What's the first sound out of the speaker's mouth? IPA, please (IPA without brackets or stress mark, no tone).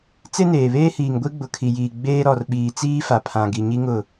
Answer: t͡s